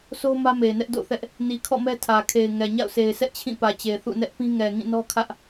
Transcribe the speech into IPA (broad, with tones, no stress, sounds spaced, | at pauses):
s o˦ m ä˦ m e˨ ɪ̯ n ɛ˦ ʔ d o̰˦˨ θ ɛ˦ ʔ | n i˨ kʰ ɔ̰˦˨ m ɛ˦ tʰ ä˨ kʰ e˨ ɪ̯ ŋ ɛ˨ ɲ a̰˦˨ ʊ̯ s e˨ ɪ̯ sʰ ɛ˦ ʔ t͡ɕʰ ĩ˦˨ p ä˨ t͡ɕ e˨ θ ṵ˦˨ n ɛ˦ ʔ p ĩ˦ ŋ ɛ˨ ŋ ĩ˦˨ n ɔ˦ kʰ ä˦ ʔ